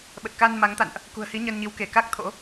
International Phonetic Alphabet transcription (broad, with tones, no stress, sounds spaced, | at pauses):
ɓ ə˨˩ t̚ k a˧ n m a˨˦ ŋ t̪ a̰˧˨ n ʔ | k ṳ˨˩ ə̯ h i˨˦ ɲ ə˧ n ɲ i˨˦ w k e˧˩ k a˦˥ k̚ t̪ʰ o̰˧˥